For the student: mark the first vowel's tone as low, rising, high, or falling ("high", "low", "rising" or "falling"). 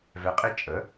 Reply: rising